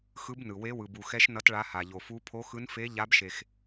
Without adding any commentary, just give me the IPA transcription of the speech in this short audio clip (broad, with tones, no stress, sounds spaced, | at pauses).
x ɯ˧˥ b n ɯ˩ w e˧˥ w ɯ˩ b u˩ x ɛ˧˥ ʃ n ʌ˧˥ t ɭ a˧˥ h a˩ ʎ o˩ f u˧˥ pʰ o˧˥ x ɯ˧˥ n f e˧˥ ʎ a˧˥ b ʃ e˩ x